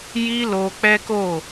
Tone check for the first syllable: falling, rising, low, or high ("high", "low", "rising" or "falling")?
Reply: high